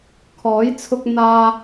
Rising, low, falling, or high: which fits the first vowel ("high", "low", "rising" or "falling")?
rising